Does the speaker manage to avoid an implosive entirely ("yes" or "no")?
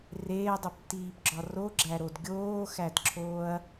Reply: yes